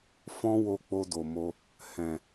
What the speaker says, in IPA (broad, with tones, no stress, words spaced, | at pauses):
fɔ̃˦wo˧k͡po˧ do˨mo˧ | hɛ̃˨